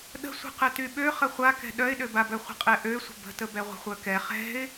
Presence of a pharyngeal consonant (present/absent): absent